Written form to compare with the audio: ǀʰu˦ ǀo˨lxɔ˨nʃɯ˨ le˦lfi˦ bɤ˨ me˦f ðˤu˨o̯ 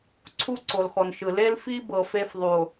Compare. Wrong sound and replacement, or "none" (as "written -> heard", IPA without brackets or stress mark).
m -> f